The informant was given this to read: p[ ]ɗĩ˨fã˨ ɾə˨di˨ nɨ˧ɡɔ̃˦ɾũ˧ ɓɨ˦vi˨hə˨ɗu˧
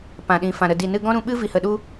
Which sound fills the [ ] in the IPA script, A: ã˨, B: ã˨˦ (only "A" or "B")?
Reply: A